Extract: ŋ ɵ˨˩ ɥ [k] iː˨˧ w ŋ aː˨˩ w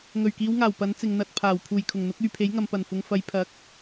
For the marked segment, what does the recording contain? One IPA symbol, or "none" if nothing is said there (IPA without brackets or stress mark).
k